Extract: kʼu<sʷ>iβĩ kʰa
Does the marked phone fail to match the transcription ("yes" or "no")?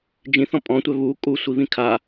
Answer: no